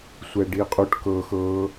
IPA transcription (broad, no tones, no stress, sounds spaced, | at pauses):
sʷ ɛ ɖ i qʼ u ʈ k ɤ x ɤ